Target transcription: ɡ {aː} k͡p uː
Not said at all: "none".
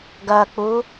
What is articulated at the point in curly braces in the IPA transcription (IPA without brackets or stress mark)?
ɐː